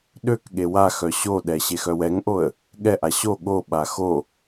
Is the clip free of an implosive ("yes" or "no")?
no